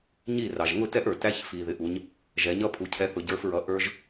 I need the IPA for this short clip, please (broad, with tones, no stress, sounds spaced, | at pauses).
ɲ i˥˩ r ɑ˩ ʒ ŋ ʊ˥˩ t ɛ˦˥ ʔ ə˞˩ t æ˧ ç f i˩ ð ɪ˩˧ ʔ u˩˧ ɲ | ʒ ɛ˩˧ ɲ ʌ˦˥ pʰ u˩˧ cʰ ɛ˨˥ θ ʊ˩˧ ɟ ə˞˨˥ f ɹ ʌ˨˥ ʔ ə˞˦˥ ʒ